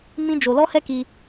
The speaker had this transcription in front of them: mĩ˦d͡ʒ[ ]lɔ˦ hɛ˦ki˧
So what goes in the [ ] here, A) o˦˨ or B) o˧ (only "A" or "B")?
B